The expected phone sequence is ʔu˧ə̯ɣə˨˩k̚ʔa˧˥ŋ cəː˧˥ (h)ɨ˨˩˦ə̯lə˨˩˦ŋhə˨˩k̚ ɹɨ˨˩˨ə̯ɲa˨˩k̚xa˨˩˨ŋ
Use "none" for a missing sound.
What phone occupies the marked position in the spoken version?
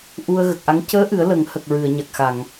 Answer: ʔ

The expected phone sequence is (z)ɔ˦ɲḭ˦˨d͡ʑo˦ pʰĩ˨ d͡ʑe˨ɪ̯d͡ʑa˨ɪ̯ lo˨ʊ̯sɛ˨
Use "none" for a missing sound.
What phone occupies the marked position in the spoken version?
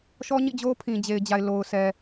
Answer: ʃ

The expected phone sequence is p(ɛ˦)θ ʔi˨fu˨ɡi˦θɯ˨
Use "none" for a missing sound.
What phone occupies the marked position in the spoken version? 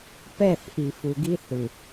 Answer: ɛ˦˨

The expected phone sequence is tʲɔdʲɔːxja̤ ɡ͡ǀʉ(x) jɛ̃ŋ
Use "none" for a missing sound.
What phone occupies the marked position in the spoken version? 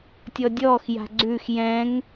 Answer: x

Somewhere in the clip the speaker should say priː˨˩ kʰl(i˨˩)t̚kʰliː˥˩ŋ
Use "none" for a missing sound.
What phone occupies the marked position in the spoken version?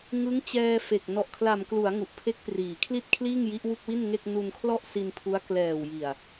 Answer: i˥˩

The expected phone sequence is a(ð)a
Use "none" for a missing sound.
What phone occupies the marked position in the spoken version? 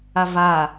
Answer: v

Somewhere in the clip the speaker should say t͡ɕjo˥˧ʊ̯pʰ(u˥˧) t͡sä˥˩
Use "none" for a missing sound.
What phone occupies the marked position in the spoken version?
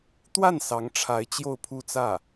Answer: u˥˧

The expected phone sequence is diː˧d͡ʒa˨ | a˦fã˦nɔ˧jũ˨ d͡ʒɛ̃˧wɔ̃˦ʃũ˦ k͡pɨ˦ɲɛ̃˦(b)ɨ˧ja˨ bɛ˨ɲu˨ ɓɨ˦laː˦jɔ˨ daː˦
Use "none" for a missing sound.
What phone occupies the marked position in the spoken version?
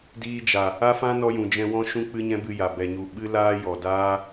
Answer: b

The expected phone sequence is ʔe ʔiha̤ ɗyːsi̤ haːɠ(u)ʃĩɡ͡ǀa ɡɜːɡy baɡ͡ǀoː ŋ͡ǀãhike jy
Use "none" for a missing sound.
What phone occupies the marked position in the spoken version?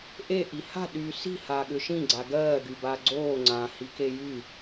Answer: ʏ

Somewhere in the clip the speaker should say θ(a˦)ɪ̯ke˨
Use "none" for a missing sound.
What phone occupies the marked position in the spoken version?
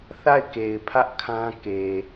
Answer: a˦˨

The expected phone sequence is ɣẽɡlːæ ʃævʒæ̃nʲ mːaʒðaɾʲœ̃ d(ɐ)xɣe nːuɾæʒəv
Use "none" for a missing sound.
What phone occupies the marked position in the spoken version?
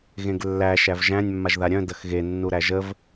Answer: ɐ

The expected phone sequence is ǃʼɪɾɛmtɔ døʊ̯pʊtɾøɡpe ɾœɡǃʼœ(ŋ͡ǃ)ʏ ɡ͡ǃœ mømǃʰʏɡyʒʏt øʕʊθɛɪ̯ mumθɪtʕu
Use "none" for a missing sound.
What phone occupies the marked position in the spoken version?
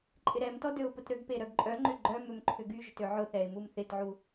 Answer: ŋ͡ǃ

